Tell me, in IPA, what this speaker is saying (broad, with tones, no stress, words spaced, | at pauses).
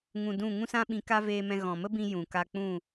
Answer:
ŋũ˧dũ˦˨ ŋũ˧sã˧ ɓĩ˧ka˦ veː˧mɛ̃˧ ɣɔ̃˨mə˦bĩ˧ jũ˨ka˧ k͡pũ˦˨